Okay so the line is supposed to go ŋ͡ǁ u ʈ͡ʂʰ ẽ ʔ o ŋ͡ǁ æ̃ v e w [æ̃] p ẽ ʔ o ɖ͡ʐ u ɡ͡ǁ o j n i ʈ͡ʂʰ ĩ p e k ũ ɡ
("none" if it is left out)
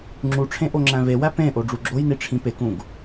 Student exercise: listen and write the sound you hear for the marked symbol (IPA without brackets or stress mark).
æ